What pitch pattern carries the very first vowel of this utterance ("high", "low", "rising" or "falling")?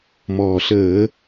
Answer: low